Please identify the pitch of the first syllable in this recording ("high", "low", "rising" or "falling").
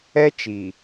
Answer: high